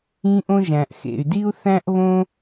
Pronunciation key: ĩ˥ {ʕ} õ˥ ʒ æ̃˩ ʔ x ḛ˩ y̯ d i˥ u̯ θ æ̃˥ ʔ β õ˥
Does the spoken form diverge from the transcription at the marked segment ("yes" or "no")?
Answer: yes